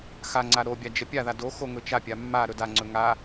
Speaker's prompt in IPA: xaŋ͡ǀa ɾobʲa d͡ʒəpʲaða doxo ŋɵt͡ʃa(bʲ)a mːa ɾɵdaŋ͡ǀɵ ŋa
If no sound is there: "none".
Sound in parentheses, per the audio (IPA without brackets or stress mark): pʲ